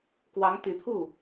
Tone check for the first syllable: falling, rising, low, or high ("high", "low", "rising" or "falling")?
rising